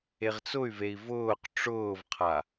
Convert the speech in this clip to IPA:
e ʁ t͡s ʊ y̯ v e i̯ v ʊː q ʈ͡ʂ ʊː v qʰ a

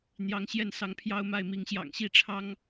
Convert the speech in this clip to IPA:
n̪ j ɑ˨˦ ŋ ɕ j ɛ˥˨ n s ɑ˨˦ ŋ pʰ j ɑ˦ ʊ̯ m a˥˨ ɪ̯ m i˨˦ ŋ ɕ j ɑ̰˨˩ ŋ ɕ i˥˨ ʈ͡ʂʰ ɑ˦ ŋ

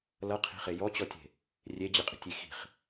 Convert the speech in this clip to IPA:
l ʌ qʰ i̤ χ e j ɔ t͡ɕ ɔ tʲ e̤ | rʲ e d͡ʑ ɨ qʼ i̤ tʲ i x i̤ χ

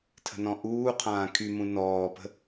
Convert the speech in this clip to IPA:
tʰ ə̤ n ɔ̃ ʔ uː qʰ ãː kʰ y m ũ n ɔː p ə̤

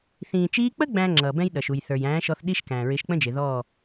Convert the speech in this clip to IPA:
θ ĩː˨ t͡ʃ iː˧ k͡p ə˦ ɡ͡b æ̃˦ ŋ͡ǁ ʌː˨ b ɛ̃˦ j ɗ ʌ˨ ʃ u˨ j θ ə˞˨ j æ̃ː˨˦ ʃ ɔ˧ θ ɗ i˦ ʃ k æ̃ː˨ ɹ ɪː˧ ʃ k͡p ə̃˦ d͡ʒ ɪ˨ ð ɔː˦˨

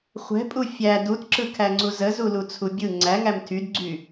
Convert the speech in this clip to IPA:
χʷ ɛ̤ pʼ u fʲ æ d u t ǁ ɯ kʰ æ ŋ͡ǀ u z ə z u l u t͡sʰ u bʲ ɯ ŋ͡ǀ æ ŋ æ m tʰ y d ɡ͡ǀ y

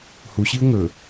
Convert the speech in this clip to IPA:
h u ɕ i ʊ̯ ŋ ɵ

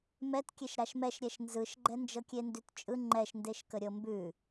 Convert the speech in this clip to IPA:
m ɛ t kʲ e ʃ ɾ a ʃ m ɛ ʃ ɾʲ ɛ ʃ n z ɯ ʃ ɡ͡ǃ ɛ n d͡ʒ ɤ kʲ e n d ʉ t t͡ʃʼ ɯ ŋ͡ǃ ɛ ʃ n d e ʃ k ə ɾʲ ɤ m b ʉ

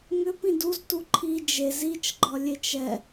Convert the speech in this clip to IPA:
ŋ ʏ p ĩ d u z t u ǃʰ i d͡ʒ e z i t͡ʃ ɡ͡ǃ ɒ lʲ e t͡ʃ ɛ

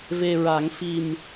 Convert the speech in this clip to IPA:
v e˧ ɹ a˨˩˦ ŋ f i˨˩ m

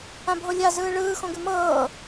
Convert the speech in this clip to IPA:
ã bʱ o lʲ a z ɯː ɭ ɯː x õ ɡ ʉ m ɤː

